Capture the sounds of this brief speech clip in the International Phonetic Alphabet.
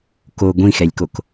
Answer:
k o ɡʷ ĩ x ɛ lʲ k o k

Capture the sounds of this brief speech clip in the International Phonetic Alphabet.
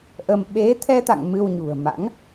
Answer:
ʔ ə˧ m ɓ e˨˦ t̪ʰ ɛ˧ t̪ a̰˧˨ ŋ m ɨ˧ w ɲ ṳ˨˩ ə̯ m a̰˧˥ ŋ

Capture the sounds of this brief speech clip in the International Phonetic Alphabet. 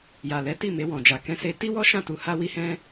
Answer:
j a˨ l ɛ˨˦ t i˦˨ m e˧ w ɔ̃˨ d͡ʒ a˨ k ɛ̃˧ s e˧ t i˦ w ɔ˦ ʃ ã˦˨ t u˧ h a˦ w i˦ h ɛ̃˦

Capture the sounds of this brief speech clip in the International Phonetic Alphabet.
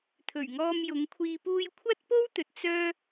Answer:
t̪ʰ ɵ˨˩ ɥ ŋ ɔː˧ m j ʊ˨˧ ŋ kʷʰ iː˧ p uː˧ j kʷʰ ɐ˥ t̚ p o˥ w t̪ ɵ˨ t̚ t͡s œː˥

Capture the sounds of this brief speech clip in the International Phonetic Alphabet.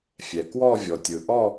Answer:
fʲ ɛ˩ k w ɔ˦˨ vʲ ɔ˩ tʲ ɯ˩ ʔ ɔ˦˨

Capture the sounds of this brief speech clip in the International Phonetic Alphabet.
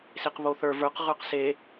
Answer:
s e q β o θ ə˞ v ə˞ q ʁ ə˞ q s e

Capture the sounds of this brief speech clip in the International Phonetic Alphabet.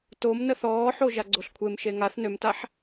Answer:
t o m n ə θ ɔː ħ o ʒ a ɡ͡ǀ o ɬ kʷʰ e m ʃ e ŋ a θ n ø m t a ħ

